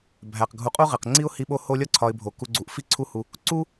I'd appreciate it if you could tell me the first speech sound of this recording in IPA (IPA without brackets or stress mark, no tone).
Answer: bʱ